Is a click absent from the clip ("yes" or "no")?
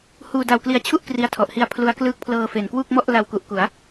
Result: yes